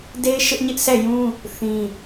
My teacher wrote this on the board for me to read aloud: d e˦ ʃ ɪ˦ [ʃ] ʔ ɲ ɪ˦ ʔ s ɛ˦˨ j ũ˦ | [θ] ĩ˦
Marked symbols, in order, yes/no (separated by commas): no, yes